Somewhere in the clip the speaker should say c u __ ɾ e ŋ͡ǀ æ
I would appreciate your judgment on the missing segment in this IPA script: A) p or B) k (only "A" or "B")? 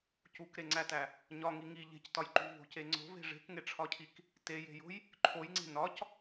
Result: B